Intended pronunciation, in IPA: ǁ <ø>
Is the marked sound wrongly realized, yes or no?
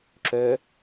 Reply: no